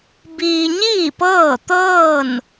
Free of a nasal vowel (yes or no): yes